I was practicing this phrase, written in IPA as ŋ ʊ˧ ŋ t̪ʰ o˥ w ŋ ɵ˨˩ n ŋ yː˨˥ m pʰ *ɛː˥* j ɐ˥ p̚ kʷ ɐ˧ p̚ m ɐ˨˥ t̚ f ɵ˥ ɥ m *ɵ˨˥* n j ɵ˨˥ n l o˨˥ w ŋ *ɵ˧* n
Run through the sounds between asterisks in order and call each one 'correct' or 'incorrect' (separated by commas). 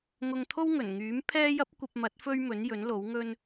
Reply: correct, correct, incorrect